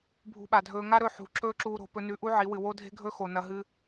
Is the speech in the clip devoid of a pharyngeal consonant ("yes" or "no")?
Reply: no